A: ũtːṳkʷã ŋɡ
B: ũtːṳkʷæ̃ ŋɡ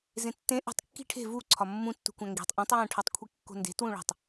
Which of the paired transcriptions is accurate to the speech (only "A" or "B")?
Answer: B